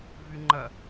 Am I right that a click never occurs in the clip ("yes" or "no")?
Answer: no